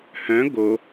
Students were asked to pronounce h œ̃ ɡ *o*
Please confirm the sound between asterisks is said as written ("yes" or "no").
yes